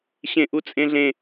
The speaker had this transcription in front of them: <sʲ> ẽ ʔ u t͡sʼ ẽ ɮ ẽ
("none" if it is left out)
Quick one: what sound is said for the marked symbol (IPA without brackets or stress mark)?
ɕ